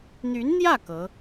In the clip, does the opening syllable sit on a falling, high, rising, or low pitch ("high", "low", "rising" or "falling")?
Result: rising